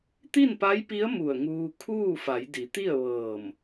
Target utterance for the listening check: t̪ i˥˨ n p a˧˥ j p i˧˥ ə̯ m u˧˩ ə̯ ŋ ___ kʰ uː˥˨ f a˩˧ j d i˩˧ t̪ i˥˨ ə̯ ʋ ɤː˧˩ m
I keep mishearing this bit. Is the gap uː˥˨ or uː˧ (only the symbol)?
uː˧